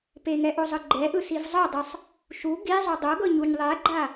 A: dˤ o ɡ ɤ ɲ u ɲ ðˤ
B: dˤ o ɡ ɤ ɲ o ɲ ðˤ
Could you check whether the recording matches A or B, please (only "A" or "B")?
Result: A